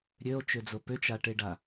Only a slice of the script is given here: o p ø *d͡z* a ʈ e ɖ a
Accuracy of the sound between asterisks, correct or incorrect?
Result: incorrect